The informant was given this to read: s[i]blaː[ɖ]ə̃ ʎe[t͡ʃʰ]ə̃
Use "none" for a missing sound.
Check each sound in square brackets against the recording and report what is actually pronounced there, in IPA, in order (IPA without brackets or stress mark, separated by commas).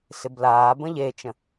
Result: ɪ, b, t͡ʃ